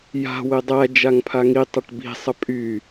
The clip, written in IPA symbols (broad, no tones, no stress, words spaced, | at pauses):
ja̤ wedˤæ d͡ʒaŋpʰaŋi tˤəʈbi̤ sˤəpʼy